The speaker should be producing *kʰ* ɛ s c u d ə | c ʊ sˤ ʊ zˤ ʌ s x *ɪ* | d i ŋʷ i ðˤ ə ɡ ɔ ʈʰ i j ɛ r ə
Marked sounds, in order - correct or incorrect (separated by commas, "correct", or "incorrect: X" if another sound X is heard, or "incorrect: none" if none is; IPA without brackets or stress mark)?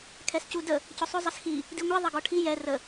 correct, incorrect: i